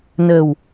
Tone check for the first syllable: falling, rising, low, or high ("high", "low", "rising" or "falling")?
low